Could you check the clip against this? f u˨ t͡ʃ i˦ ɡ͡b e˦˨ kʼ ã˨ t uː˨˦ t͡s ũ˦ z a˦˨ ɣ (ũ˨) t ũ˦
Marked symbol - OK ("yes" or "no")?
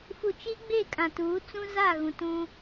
yes